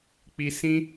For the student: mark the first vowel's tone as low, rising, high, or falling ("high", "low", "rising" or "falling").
high